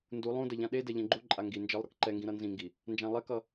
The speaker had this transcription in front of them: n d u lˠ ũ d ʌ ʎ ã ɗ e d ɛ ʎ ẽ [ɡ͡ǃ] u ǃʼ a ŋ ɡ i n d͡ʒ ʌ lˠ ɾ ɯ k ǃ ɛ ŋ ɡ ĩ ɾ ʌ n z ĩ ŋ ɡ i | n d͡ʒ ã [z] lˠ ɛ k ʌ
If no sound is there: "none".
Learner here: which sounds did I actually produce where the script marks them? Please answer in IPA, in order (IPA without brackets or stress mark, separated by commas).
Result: ɡ͡ǃ, none